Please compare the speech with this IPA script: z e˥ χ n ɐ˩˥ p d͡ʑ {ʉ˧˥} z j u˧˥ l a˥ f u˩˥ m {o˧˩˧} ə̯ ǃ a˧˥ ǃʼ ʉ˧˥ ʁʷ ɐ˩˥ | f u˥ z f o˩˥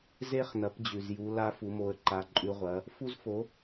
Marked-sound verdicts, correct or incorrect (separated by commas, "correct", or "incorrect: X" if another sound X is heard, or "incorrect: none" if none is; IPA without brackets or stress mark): incorrect: ʉ˨˩, incorrect: o˧˥